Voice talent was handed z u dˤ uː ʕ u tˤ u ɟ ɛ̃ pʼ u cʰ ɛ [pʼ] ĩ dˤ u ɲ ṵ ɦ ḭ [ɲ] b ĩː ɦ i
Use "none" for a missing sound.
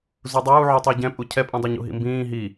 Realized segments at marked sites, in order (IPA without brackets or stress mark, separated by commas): pʼ, m